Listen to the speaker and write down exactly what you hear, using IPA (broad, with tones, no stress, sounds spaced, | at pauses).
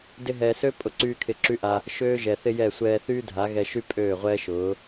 d ɪ˧ ɦ ɛː˨ s ø˦ pʼ ʊ˨ ǀ yː˧ kʰ ɪ˧ ǁ y˦ ʔ a˧ | ʃ øː˦ ʒ ɛ˨ θ ɪ˦ j ɛ˦˨ sʷ ɛː˧ θ yː˦ dʱ a˨˦ ɣ ɛ˧ ʃ y˦ pʼ øː˦˨ ʁʷ ɛː˦ ʃ ʊː˨˦